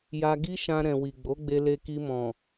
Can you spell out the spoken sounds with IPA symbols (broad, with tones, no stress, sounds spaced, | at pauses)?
j a˧ ɡ i˦ ʃ ã˧ ɾ ɛ̃˨ w i˨ ɡ͡b o˨˦ ɡ͡b e˧ l e˧ k i˧ m ɔ̃˨